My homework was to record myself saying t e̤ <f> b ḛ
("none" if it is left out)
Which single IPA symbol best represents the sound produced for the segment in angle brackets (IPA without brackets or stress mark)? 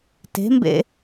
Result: m